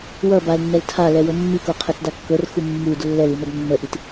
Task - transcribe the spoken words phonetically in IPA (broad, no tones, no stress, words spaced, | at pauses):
wʌ balnːɛl tʰalɛwɤ mːikoqʰɛtda kːɤrxu mːud lːɛlin̪ʌd nːəʔit